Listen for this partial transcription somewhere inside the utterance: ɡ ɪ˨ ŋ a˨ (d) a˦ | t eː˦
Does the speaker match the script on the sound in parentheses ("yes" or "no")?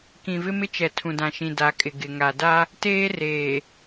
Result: yes